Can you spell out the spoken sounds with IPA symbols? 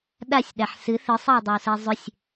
ɗ a sʲ ɗ a ħ s ɨ θ ɨ sˤ ɛ w dˤ ʏ w s ɛ zˤ ʏ sʲ

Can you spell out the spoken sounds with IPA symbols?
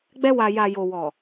ɡ͡b ɛ˧ w a˨ j a˨ j o˨ w ɔ˨

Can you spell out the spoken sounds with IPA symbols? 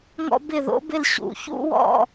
ŋ ɔ̰˦ b ɪ˦˨ ð o̰˨˥ b ɪ˦˨ l ɕ ṵ˨˩˦ ç ṵ˦ w ɔ̰˦˨

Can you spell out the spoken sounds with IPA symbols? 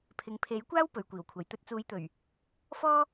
pʰ ɪ˨ ŋ pʰ e˨˥ j kʷ aː˥ w p ɵ˨ ɥ kʷ iː˨˩ w kʷʰ ɐ˨ j t̪ ɵ˧ t̚ t͡s uː˨˧ j t̪ ɵ˨˩ ɥ | f ɔː˥

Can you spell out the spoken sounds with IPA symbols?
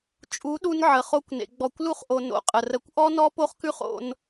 t͡ʃʼ u˨˦ ɗ u˧ n ʕ ə˨ χ o˧ kʷ n ḛ˨ ɡ͡b ɔ˨ kʷ l u˧ χ ʔ o˨ n o̰˨ qʼ ə˨ r ə˨˦ kʷ ʔ ɔ˦ n ɔ˦ p o˦ χ k ʉ˦ χ o̰˦ n

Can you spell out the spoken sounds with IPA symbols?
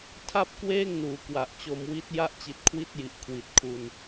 tʰ a˥˩ p̚ k w eː˥˩ ŋ n uː˩˦ k w a˨˩ ʔ t͡ɕ o˧ m w i˦˥ t̚ j a˦˥ ʔ t͡ɕ i˨˩ t̚ kʰ w i˦˥ t̚ j i˨˩ ʔ kʰ w i˨˩ t̚ kʰ u˧ n

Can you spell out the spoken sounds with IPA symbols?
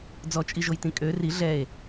d͡z ɔ t͡ʃʼ i ʒ o j t ĩ kʼ ø r i ɮ ɛ e̯

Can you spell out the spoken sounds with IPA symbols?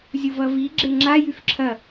zʲ u v ʌ v i ɡ͡ǁ e ŋ͡ǁ a j y f ǁʰ ɐ

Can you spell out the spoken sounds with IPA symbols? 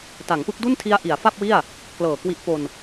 t a˩˦ ŋ p ɯ˦˥ k̚ d u˥˩ n tʰ i˦˥ a̯ ʔ i˩˦ a̯ f a˥˩ p̚ w i˥˩ a̯ | k l ɤː˨˩ k w i˦˥ ʔ p o˧ n

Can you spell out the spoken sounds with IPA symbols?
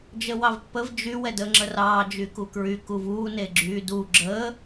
d͡ʒ ə w ɑ v pː ə v d͡ʒ y w ɛ d əː ŋ͡ǁ ə r ɑː d͡ʒ y k u k ɹ y k u v uː n e ɡ͡ǁ yː d u ɡ͡ǁ əː

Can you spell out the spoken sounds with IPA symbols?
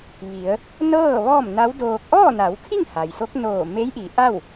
ʋ i˩˧ ə̯ | n ɤː˥˨ ʋ ɔː˥˨ m n a˧˥ w d oː˧ k̚ ʔ ɔː˥˨ n a˩˧ w kʰ i˥˨ ŋ h a˩ j s o˧˥ k̚ n oː˧˩ m e˧˥ j ʔ i˩˧ ʔ a˥˨ w

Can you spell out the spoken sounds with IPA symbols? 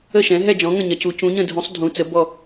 ə˦˨ ʃ ɛ̃˩˧ ɦ ɛ˦˨ d͡ʒ ɔ̃˩˧ ŋ ə̃˦˨ ɲ ɜ˩˧ c u˩˧ c ũ˩˧ ɲ ə̃˦˨ dʱ ũ˩˧ sˤ dʱ ũ˩˧ t͡s ə˩˧ b ɔ˦˨

